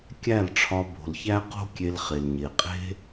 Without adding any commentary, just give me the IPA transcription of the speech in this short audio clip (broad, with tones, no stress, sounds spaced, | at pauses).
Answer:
kʲ æ˦˨ l ʈ͡ʂʰ ɒ˧ b o̤˨ l ç æ˦ q o̤˦ kʲ e˧ l χ e˨ l ɲ e˨ qʼ e̤˦